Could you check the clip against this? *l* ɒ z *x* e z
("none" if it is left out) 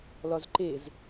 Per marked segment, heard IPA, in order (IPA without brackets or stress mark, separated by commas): l, ǃ